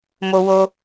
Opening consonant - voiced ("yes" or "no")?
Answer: yes